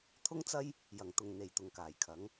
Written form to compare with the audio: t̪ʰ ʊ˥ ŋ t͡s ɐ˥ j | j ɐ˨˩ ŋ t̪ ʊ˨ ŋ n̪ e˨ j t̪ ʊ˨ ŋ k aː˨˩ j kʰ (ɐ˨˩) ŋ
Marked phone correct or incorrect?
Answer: incorrect